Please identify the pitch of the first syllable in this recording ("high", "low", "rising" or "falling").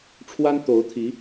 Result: high